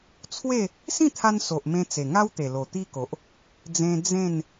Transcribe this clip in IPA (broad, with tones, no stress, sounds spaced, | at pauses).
t͡sʰ w e˥˧ | s ĩ˥˧ t̪ʰ a˧ n s o˨ ʔ m ẽ˧ t͡s e˨˩ ŋ a˦ w t̪ e˨˩ l o˨˩ t̪ i˦ k o˨ ʔ | d͡z ẽ˧ d͡z ẽ˥˧ n